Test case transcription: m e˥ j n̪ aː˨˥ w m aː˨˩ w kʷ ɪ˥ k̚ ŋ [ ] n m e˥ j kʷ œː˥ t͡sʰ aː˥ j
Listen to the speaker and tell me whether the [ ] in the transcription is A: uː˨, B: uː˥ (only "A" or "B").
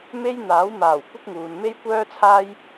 A